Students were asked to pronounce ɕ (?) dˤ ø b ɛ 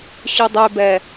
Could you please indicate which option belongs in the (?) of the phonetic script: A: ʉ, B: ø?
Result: A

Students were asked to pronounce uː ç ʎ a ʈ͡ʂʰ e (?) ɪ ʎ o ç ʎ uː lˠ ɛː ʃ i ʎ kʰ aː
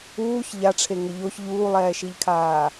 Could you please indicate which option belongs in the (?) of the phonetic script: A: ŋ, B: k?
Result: A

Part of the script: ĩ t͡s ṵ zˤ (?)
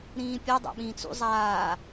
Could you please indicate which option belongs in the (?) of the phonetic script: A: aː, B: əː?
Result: A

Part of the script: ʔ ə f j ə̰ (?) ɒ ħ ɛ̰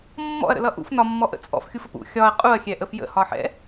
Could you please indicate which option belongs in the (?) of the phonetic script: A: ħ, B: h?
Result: B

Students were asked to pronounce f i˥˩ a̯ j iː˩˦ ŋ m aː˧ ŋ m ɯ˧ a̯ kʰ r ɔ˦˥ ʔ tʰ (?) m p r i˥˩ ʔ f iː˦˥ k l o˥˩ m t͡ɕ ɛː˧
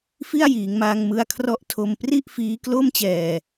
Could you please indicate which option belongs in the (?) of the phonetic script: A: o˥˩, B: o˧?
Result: B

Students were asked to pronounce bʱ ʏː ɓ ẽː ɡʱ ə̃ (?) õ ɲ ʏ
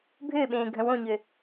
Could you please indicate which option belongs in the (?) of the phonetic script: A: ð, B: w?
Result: B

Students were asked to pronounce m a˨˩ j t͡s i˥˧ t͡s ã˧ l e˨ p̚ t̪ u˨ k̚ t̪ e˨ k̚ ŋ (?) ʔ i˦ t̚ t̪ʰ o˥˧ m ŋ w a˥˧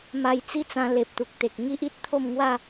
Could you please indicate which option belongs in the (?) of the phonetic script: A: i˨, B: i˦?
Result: B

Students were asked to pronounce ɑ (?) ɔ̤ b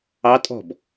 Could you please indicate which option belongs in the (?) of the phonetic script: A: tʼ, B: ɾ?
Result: A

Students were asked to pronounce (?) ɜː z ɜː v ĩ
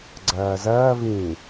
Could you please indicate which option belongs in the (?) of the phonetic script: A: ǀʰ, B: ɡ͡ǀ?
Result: B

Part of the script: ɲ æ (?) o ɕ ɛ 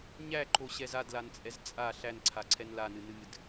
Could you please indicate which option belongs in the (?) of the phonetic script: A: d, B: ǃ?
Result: B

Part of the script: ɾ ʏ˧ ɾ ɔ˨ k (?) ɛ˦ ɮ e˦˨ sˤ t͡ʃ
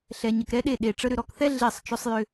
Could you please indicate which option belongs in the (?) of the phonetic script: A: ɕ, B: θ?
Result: B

